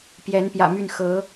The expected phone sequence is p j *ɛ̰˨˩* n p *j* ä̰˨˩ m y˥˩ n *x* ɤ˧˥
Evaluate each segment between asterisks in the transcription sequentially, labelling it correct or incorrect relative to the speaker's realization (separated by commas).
incorrect, correct, correct